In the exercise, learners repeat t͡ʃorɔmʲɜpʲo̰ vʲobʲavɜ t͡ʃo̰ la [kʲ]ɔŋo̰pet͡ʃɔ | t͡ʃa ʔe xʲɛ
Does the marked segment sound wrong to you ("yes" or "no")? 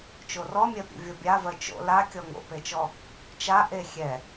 no